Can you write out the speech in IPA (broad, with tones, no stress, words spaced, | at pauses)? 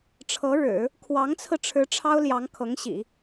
ʈ͡ʂʰɤ˧˥ɻɻ̩˨˩˦ | kʰwɑ˧˥ŋt͡sʰɹ̩˧ʈ͡ʂʰɻ̩˧˥ ʈ͡ʂʰɑ˥ʊ̯ljɑ˧˥ŋ kʰɤ˧˥ŋɕḭ˨˩˦